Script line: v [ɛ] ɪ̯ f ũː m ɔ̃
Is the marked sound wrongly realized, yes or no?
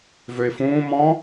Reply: yes